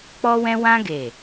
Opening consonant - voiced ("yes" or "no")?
no